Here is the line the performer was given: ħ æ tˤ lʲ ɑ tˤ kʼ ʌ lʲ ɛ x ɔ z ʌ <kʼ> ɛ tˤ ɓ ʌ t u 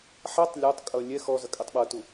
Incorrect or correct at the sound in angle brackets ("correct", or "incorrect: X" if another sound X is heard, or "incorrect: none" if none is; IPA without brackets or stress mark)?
correct